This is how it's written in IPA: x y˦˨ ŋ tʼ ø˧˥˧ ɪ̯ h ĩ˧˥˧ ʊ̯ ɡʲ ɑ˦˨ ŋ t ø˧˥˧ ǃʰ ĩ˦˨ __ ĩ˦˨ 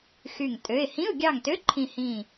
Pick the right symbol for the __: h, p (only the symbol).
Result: h